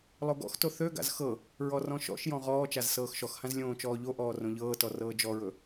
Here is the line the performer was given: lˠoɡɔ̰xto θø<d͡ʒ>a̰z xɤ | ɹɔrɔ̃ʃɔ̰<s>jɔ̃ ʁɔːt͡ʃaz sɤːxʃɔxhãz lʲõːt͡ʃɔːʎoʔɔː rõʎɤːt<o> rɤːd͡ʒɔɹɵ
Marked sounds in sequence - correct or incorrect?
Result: incorrect, incorrect, incorrect

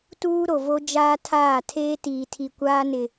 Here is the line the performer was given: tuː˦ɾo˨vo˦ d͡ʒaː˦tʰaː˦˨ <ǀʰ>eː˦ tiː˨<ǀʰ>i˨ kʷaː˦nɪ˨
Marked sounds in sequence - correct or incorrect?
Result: incorrect, incorrect

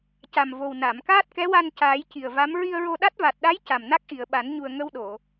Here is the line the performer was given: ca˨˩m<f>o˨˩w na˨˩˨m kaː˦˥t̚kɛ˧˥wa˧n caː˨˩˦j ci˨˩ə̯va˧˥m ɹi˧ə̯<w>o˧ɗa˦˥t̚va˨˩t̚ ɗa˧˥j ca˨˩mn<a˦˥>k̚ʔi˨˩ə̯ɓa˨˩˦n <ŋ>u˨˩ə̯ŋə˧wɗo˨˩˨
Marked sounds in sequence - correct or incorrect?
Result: incorrect, incorrect, correct, incorrect

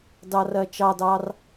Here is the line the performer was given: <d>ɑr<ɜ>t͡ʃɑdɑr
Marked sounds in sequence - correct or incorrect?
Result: correct, correct

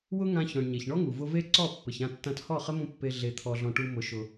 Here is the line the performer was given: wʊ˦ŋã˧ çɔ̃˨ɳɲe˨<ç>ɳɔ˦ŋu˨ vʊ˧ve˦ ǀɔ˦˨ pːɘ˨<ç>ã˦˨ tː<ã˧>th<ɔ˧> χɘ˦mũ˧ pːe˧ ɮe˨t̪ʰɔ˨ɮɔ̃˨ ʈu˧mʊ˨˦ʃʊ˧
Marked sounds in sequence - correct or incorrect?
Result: correct, correct, correct, incorrect

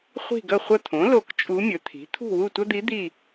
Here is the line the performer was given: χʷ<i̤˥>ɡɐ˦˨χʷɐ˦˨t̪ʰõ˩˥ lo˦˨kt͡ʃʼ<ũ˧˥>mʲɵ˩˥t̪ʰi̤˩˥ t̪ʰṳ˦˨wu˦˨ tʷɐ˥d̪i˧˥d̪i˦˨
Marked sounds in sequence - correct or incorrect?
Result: incorrect, incorrect

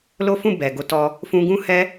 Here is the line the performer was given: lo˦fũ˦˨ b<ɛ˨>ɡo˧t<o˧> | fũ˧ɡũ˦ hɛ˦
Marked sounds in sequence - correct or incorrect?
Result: correct, incorrect

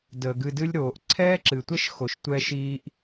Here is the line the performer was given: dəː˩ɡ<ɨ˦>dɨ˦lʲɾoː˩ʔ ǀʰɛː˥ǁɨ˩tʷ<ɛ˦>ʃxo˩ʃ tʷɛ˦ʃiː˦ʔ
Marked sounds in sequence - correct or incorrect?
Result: incorrect, incorrect

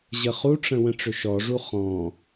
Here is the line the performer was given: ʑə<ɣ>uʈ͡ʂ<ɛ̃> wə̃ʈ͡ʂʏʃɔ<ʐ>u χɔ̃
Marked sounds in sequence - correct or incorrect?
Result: incorrect, incorrect, correct

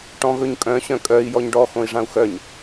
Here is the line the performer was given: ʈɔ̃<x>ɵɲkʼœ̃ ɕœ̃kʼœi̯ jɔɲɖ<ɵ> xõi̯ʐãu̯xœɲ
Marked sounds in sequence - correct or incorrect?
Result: incorrect, incorrect

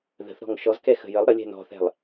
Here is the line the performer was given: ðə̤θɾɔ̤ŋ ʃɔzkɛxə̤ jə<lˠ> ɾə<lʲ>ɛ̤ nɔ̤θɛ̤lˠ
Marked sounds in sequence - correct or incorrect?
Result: correct, correct

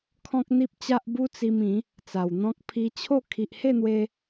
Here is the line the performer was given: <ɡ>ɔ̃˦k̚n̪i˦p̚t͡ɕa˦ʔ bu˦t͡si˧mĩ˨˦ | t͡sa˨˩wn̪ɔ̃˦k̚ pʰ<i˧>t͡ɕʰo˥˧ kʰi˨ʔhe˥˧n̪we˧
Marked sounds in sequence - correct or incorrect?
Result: incorrect, correct

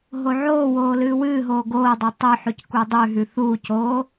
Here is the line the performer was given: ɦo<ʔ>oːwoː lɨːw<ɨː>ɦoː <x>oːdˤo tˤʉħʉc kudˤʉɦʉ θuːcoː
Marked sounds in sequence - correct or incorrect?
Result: incorrect, correct, incorrect

